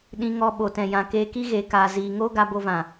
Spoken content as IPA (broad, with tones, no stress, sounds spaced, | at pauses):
ɗ ĩ˧ ŋ ɔ˧ ɓ o˨ t ɛ̃˨ j ã˨ k eː˧ k i˦ ɣ eː˨ k aː˨ z iː˨ ŋ oː˦ ɡ a˧ b o˧ v ã˨